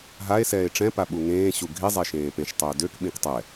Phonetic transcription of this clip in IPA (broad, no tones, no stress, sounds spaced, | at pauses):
ɦ a e̯ s ɛː e̯ ʈ͡ʂ ɛ̃ p a ɓ u ŋ ẽː ɕ u ɡʱ i zˤ e ʃ ẽː p ẽ ʃ tˤ øː d ø k ɓ ĩ k tˤ ɛ